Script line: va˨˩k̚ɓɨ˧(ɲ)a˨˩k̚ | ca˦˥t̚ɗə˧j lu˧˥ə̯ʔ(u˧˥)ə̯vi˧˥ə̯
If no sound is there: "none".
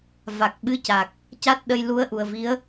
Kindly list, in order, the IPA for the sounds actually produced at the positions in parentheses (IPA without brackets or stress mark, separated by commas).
c, u˨˩